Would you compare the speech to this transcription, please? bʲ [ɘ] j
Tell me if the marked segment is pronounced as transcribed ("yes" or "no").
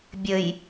yes